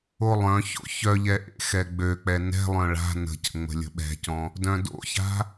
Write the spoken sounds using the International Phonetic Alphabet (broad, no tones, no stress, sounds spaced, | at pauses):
o lˠ œ̃ ç o̰ ç œ ʎ ɛ ʔ ḛ x ɛ ɡ͡b ø k͡p ɛ n ɛ̤ lˠ œ̃ ɭ a̤ n ə̤ c ə̰ ŋ͡m ə̤ lʲ ə̤ ɓ ɛ̤ c ɔ̃ | d œ̃ d o̰ ç a̤